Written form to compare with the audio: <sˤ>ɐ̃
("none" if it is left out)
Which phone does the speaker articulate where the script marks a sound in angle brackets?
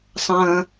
sˤ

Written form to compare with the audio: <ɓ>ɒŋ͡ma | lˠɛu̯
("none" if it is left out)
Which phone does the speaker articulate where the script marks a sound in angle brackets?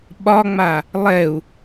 ɓ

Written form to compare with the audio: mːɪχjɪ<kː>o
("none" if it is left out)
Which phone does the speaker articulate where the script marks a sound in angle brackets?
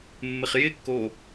kː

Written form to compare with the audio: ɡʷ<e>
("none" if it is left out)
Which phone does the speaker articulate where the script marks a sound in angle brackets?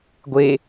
e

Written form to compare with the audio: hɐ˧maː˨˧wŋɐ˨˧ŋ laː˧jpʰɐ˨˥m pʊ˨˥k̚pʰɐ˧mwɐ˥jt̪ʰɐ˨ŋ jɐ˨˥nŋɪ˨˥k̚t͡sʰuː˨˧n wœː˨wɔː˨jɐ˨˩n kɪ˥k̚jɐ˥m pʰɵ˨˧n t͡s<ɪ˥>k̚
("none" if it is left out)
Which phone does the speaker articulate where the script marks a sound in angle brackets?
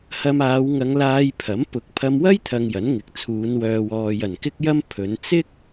ɪ˥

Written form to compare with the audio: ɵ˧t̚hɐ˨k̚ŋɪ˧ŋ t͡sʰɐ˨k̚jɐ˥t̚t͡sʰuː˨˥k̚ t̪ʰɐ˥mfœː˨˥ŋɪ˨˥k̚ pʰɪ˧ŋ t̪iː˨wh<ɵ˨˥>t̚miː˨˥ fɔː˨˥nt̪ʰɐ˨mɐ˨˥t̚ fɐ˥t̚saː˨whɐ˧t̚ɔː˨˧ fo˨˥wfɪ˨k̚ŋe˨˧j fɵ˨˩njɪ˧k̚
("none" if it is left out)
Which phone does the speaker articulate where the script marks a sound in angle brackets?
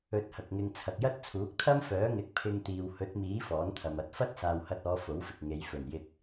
ɵ˨˥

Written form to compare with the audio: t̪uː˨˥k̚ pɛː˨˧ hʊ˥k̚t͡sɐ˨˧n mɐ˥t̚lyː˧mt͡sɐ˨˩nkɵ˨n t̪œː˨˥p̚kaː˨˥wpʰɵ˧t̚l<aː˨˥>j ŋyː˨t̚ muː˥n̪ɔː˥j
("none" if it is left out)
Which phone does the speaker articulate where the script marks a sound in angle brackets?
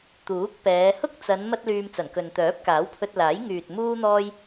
aː˨˥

